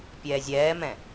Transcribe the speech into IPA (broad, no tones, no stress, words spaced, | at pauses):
pʲɛːzʲɛːmɛ̃